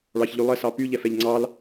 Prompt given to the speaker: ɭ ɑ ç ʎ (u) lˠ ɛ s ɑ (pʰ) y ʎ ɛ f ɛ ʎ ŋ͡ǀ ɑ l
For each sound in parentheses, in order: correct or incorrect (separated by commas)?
incorrect, incorrect